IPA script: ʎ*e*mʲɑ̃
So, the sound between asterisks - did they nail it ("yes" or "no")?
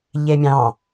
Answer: yes